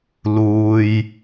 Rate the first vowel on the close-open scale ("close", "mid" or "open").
close